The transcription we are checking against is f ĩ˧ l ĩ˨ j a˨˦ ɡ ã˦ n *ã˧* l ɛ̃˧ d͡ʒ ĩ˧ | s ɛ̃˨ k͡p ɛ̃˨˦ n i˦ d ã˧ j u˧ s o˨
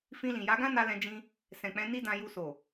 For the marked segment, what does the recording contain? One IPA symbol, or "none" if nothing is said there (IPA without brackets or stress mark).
a˧